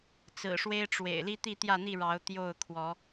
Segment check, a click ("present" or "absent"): absent